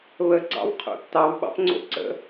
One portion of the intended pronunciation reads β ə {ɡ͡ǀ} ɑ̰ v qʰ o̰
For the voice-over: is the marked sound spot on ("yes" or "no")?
yes